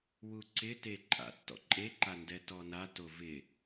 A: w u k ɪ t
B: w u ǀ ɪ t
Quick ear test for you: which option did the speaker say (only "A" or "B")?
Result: B